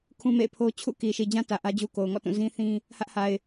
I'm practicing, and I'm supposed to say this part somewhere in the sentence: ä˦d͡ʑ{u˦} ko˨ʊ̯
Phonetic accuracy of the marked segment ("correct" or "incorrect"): correct